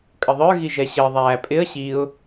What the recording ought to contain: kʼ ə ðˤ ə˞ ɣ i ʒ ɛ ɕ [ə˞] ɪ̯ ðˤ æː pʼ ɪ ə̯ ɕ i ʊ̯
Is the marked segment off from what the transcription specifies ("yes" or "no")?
yes